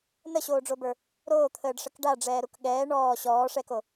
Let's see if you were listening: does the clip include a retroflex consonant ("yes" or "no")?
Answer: yes